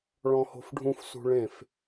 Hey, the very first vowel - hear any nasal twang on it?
yes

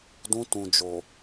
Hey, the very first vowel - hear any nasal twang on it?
yes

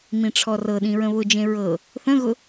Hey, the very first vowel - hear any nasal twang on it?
yes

